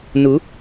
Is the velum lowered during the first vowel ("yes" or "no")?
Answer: no